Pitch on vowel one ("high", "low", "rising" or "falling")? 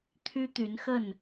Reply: high